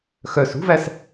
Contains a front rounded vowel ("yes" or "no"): yes